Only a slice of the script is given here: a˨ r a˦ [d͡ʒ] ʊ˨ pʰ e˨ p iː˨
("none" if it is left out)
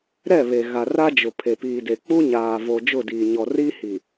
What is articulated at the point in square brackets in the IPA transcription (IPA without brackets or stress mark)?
d͡ʒ